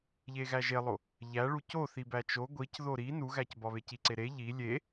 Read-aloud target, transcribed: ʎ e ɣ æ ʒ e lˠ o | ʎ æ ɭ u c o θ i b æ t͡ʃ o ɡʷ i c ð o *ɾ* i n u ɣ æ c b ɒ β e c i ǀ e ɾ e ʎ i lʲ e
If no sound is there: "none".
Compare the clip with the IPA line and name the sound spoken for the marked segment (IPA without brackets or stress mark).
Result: ɾ